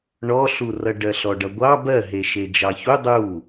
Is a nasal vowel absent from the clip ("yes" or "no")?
yes